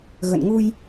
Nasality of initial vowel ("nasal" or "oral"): oral